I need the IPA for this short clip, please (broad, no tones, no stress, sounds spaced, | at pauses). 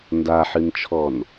n d a ħ ɨ n t͡ʃʰ ɔ n